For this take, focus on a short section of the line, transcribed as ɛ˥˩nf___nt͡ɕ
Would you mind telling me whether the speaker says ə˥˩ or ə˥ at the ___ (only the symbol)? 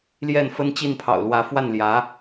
ə˥